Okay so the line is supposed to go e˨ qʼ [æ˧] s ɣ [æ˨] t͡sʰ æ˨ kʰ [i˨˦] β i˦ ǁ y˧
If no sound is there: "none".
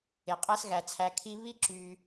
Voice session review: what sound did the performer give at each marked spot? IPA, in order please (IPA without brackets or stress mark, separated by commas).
æ˧, æ˨, i˧